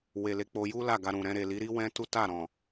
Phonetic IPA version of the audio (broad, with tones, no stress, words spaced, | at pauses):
we˨le˨˦k͡po˧ ju˦ la˦˨ɡa˧ɾũ˨ ɾɛ̃˧ ɾe˨li˨˦ɾi˦ wɛ̃˦tu˦ta˦˨ɾɔ̃˨